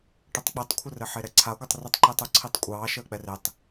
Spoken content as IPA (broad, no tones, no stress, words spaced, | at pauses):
ʈɘtˤk͡pitˤkʷʰɘ rɘħeɾɛǀʰa ɡʷətˤritˤǃitˤu ǀʰitˤkʷʼɑː ʃəːk͡pɛretˤ